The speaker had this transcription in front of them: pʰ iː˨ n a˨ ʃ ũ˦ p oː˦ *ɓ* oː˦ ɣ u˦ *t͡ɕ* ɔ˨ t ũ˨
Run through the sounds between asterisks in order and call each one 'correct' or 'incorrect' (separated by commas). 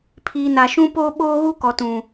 correct, incorrect